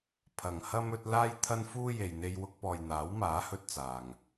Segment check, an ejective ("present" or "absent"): absent